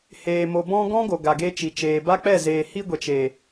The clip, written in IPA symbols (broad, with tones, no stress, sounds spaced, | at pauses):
h eː˨ m o˨ b ɔ̃˧ ɡ ɔ̃˦ ɡ o˨ ɡ a˨ ɡ e˧ t͡ʃ i˨ t͡ʃ eː˨ b a˦ k͡p ɛ˦˨ z eː˨ h i˧ ɡʷ ɛ˨ t͡ʃ e˨